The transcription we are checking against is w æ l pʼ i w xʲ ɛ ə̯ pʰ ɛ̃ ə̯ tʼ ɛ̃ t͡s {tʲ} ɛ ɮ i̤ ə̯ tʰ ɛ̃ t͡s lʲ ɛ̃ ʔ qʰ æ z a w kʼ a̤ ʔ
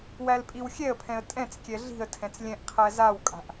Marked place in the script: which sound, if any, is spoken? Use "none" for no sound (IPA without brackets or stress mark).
kʲ